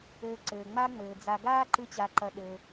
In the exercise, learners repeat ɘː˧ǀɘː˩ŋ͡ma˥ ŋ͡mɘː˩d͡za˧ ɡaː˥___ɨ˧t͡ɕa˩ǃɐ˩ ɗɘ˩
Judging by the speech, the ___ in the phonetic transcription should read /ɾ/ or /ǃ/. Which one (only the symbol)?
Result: ǃ